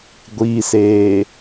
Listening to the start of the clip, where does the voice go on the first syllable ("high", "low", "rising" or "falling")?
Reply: low